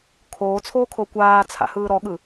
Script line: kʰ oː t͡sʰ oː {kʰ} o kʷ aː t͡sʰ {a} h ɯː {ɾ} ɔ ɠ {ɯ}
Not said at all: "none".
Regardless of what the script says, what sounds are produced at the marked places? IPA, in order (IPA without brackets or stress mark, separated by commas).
kʰ, a̰, ɾ, ɯ